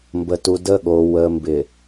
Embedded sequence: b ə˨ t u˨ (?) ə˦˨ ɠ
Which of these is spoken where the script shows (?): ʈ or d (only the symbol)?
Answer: d